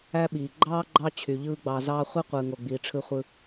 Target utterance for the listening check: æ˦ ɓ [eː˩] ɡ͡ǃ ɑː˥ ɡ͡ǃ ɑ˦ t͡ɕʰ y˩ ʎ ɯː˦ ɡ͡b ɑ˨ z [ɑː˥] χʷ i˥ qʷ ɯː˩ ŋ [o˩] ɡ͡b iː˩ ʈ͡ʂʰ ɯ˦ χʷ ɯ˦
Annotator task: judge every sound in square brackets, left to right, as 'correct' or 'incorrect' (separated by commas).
incorrect, correct, correct